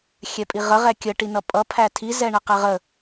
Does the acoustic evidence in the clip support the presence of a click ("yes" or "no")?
no